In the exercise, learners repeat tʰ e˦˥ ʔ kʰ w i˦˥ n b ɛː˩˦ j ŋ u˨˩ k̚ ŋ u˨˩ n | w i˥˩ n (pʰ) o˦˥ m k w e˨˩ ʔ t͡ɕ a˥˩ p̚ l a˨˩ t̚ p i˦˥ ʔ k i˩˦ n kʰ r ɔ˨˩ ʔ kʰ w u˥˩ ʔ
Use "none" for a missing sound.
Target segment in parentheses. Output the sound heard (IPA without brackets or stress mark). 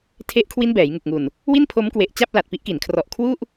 pʰ